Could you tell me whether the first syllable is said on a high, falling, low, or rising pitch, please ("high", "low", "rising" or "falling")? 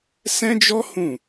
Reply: high